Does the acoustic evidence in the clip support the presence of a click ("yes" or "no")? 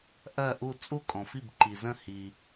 yes